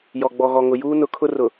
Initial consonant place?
palatal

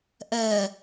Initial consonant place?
glottal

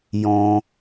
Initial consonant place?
palatal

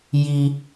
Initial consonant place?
palatal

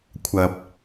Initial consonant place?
velar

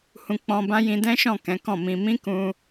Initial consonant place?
glottal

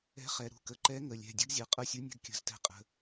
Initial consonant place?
uvular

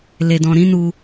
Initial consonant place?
alveolar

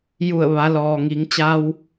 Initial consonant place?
palatal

